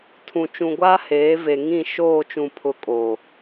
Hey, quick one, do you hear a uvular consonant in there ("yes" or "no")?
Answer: no